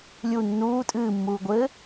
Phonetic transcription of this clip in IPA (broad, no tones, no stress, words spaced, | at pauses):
lʲu nːuː tʼɨːmːuː ɡʷɘ